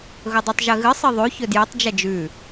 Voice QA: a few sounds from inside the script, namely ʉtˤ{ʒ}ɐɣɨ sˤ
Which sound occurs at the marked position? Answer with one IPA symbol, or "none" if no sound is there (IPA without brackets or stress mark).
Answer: ʒ